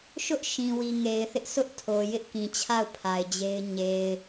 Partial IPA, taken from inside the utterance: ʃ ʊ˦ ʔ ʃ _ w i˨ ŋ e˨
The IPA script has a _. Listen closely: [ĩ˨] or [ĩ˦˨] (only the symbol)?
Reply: ĩ˨